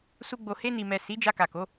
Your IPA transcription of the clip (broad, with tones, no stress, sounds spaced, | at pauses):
s u˧ ɡ͡b o˨ h e˧ n i˨ m ɛ˨ s i˨˦ d͡ʒ a˧ k a˨ k o˨˦